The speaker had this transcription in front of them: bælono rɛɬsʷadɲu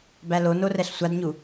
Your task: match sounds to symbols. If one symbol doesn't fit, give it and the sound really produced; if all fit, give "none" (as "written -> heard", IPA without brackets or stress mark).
none